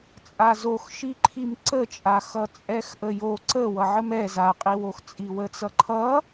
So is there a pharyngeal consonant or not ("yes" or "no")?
yes